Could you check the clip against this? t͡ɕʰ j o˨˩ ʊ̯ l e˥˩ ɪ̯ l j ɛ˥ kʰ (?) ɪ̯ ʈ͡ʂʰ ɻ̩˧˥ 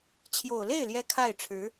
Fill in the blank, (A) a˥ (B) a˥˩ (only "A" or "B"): B